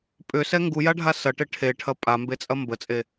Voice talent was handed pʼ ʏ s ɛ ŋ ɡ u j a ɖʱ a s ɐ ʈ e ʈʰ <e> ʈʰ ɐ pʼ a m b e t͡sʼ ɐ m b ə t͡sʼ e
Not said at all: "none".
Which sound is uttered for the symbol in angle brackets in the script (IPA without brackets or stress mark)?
e